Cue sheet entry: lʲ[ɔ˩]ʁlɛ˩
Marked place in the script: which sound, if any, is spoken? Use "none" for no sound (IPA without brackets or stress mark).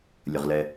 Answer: ə˩